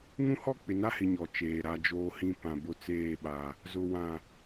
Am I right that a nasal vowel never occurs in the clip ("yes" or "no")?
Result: no